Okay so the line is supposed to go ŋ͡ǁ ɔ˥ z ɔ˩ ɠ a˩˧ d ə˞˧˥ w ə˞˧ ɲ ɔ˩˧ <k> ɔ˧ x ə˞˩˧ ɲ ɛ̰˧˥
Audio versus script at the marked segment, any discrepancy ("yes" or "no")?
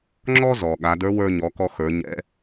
no